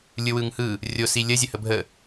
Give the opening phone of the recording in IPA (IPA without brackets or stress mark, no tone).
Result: lʲ